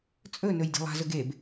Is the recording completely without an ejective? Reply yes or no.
no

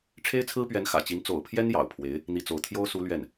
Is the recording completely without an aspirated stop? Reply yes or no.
no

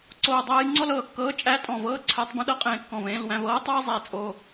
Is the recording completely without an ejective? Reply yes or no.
no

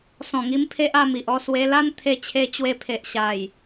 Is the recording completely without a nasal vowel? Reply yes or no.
no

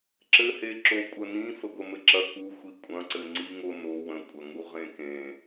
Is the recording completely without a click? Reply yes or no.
no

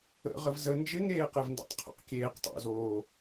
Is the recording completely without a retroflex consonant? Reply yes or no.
yes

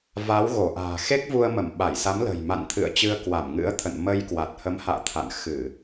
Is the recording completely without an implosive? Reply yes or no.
no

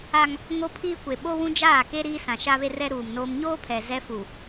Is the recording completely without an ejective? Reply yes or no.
yes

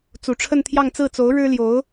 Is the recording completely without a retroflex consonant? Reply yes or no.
no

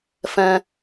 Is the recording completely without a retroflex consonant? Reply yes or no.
yes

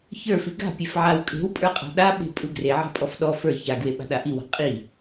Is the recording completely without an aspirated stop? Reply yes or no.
yes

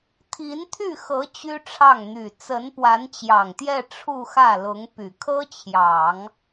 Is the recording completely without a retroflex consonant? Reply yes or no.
no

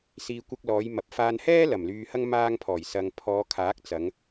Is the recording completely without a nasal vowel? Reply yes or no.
yes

